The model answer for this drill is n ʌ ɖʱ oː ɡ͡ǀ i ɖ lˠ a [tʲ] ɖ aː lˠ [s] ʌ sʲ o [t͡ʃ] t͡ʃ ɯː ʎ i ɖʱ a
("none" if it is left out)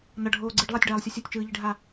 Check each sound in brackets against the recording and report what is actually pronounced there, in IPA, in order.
tʲ, sʲ, tʲ

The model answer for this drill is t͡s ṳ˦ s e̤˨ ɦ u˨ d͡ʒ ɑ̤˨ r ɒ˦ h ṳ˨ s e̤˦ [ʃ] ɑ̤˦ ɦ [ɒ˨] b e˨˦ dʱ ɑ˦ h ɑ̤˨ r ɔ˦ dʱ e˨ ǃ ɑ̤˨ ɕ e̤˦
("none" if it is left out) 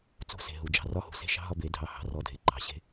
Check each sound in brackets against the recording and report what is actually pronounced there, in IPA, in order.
ʃ, ɒ˦

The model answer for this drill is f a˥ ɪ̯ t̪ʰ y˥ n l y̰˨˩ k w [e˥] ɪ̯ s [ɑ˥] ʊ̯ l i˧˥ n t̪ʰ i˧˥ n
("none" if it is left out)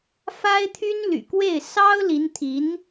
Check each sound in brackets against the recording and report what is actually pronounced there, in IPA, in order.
e˥˩, ɑ˥

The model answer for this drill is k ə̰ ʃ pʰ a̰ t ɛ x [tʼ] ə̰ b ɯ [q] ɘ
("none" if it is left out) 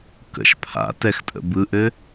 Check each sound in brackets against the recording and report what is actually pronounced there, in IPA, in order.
tʼ, ʔ

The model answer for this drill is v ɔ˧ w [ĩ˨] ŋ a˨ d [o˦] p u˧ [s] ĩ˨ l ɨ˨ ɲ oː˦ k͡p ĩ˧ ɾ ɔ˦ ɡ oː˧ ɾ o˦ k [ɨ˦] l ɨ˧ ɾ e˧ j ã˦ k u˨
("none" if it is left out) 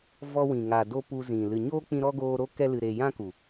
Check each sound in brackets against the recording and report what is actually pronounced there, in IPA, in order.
ĩ˨, o˦, z, ɛ˦

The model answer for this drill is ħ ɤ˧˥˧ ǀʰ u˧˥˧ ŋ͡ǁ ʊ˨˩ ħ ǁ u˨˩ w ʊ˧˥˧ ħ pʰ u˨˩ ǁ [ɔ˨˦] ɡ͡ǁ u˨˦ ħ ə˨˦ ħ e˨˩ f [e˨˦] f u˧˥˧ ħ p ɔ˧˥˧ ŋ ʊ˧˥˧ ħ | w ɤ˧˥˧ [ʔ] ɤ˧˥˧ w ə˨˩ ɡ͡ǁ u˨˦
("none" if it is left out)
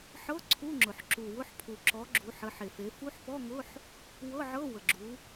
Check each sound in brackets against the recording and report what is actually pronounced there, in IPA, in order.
ɔ˨˦, e˨˦, ʕ

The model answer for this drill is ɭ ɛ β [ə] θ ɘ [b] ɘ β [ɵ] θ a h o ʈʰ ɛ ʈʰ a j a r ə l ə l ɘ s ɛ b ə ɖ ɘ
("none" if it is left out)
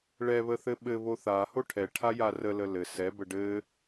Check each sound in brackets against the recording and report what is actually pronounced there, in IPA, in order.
ə, ɓ, o

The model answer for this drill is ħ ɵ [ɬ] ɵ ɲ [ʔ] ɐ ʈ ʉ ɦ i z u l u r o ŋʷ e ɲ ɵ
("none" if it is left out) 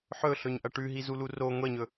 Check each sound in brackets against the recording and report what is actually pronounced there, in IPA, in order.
ɬ, ʔ

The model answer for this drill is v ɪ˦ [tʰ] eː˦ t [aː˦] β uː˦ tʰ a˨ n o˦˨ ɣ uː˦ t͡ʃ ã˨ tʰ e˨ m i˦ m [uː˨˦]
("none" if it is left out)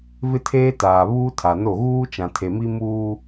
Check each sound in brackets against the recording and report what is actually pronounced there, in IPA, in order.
tʰ, aː˨, uː˦

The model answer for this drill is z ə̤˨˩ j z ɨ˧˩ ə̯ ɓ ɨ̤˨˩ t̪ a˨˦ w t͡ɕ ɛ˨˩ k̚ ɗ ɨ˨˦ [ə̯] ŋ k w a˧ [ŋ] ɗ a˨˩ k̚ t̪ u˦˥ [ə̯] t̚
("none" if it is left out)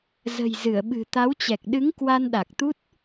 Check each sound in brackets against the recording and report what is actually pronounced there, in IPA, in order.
none, n, none

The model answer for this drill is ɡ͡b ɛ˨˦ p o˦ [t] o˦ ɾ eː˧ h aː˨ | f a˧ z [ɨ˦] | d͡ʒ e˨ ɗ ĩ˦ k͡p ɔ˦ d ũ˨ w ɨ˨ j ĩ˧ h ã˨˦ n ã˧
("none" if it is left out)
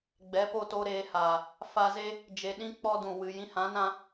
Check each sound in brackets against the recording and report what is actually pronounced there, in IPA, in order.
t, e˦

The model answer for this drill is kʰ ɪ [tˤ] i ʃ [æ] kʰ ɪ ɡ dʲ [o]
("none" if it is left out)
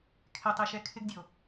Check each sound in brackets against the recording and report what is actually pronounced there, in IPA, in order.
tˤ, ɛ, o

